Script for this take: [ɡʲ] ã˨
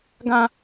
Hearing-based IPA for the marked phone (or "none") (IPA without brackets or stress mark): ɡ